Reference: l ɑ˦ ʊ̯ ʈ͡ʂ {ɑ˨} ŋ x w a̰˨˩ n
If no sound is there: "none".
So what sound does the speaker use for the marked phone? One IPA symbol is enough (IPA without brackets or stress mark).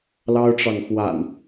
ɑ˨